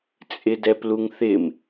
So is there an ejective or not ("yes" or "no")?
yes